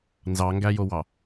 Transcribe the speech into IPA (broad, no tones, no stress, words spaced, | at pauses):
nzɑŋɡæjowɑ